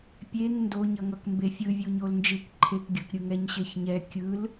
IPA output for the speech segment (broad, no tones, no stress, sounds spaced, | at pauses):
pʲ e ŋ n d o ɲ ʌ ŋ ʌ k m b e fʲ ɯ vʲ u ɲ o l n d͡ʒ ɯ k ǃʰ e k ɡʲ ʌ k ɾʲ ɯ ŋ ɛ ɲ ɕ e ç ɲ ɛ kʲ ɯ l